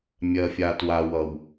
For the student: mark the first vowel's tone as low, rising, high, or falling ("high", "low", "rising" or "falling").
low